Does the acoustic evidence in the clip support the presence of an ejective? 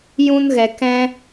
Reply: no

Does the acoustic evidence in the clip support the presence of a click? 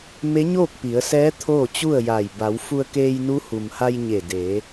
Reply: no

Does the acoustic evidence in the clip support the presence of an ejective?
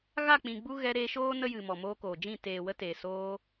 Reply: no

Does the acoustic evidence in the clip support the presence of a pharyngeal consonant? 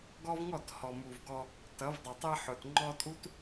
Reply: yes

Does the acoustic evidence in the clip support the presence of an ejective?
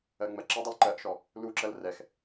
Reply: no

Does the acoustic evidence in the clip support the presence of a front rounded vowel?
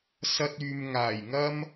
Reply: yes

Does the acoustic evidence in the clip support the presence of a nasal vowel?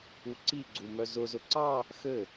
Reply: no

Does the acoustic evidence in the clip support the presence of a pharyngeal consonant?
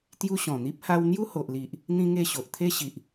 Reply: no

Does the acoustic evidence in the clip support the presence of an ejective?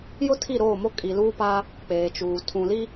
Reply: yes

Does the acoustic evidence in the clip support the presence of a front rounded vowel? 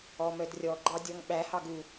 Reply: yes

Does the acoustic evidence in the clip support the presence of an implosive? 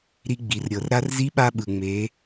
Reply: yes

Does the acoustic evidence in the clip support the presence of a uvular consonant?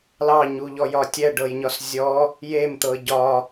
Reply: no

